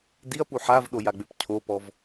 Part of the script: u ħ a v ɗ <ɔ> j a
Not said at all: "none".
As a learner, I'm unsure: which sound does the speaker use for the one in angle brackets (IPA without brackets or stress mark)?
o